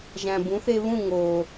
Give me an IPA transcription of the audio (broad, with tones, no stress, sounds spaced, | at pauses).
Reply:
ʒ æ̃˩ b ũ˩˥ θ e˧ β ũ˥˩ ŋ o˩